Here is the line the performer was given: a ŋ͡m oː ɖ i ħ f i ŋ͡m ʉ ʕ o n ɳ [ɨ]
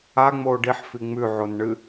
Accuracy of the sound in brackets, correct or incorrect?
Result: correct